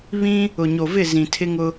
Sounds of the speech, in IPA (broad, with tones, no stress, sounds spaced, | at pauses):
β ĩ˦ | ʊ˨ ɲ o˨ v ɪ˦˨ z ĩ˨ tʰ ɪ˦ ŋ ʊ˦